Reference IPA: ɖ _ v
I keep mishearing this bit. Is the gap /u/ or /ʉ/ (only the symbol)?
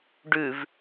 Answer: ʉ